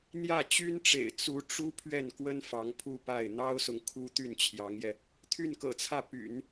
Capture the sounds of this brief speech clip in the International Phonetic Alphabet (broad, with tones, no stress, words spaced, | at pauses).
n̪jä˥˩t͡ɕy˥nʈ͡ʂḛ˨˩ɪ̯ t͡su˧˥ʈ͡ʂu˥ pʰɥɛ˥˩nkwə˥n fɑ˧˥ŋpʰu˥˧pa˥˩ɪ̯ n̪ɑ˥ʊ̯sʊ˨ŋ kʰu˥ t̪y˥˩nt͡ɕʰjɑ˧˥ŋjɛ˧ | t̪ʰy˥˩nkɤ̰˨˩t͡sʰä˥˩ py̰˨˩˦n